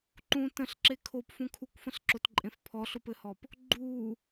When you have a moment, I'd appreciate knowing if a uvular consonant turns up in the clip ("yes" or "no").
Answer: no